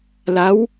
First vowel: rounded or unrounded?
unrounded